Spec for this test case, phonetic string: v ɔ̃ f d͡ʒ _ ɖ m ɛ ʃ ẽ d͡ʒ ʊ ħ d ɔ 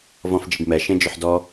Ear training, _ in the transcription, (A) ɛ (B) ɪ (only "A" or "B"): B